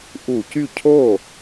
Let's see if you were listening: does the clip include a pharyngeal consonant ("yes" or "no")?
no